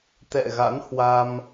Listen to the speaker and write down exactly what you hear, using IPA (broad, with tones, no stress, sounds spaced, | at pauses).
t̪ ɛ̰˧˨ ɣ a̰˧˥ n h w a˧ m